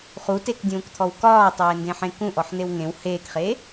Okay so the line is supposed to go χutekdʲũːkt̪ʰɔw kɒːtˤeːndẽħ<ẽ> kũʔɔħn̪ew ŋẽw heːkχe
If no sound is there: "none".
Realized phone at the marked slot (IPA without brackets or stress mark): ẽ